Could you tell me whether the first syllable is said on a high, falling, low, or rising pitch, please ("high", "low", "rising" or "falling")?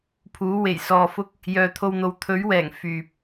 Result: rising